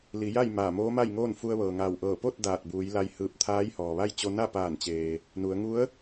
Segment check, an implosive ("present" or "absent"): absent